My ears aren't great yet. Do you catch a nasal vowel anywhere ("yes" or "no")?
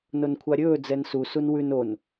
no